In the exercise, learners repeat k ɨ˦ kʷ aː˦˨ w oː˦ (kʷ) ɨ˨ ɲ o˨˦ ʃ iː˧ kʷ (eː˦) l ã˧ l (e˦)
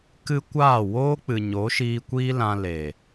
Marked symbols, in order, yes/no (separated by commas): no, no, no